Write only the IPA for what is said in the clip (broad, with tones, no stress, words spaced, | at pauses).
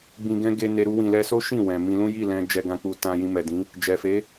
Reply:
ɡ͡bĩ˧ɡɛ̃˦ ɡe˧ ne˧ ɾu˧wĩ˨lɛ˧so˦ ʃĩ˦˨ wɛ̃˨mĩ˧lũ˦ ji˦˨lɛ̃˧ d͡ʒɛ˧ɡã˧k͡pu˧ tã˧ jĩ˧mɛ˨dĩ˨˦ | d͡ʒɛ˨fe˨˦